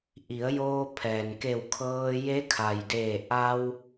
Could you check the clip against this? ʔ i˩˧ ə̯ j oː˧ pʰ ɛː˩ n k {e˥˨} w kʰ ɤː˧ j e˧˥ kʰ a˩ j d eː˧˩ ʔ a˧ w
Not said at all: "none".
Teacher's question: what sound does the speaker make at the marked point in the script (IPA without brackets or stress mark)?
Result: e˧˩